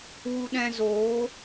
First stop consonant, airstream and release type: implosive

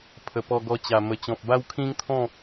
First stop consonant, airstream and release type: aspirated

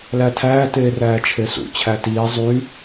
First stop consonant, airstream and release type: aspirated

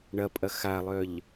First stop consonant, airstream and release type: ejective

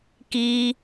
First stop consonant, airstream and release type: plain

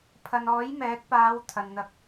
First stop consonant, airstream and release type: aspirated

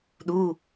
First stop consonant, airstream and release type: implosive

